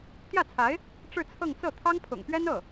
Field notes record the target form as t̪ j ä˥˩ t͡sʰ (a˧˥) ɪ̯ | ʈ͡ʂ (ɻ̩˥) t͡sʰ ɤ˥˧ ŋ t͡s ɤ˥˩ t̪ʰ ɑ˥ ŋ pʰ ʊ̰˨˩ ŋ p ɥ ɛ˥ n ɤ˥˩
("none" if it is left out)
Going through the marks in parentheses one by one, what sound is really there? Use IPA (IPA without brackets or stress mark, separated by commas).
a˧˥, ɻ̩˥˧